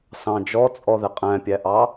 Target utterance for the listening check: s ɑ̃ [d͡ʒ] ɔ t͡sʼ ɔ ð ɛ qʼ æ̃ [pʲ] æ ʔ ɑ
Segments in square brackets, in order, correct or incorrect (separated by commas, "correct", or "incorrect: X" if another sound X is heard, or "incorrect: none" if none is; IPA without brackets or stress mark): correct, correct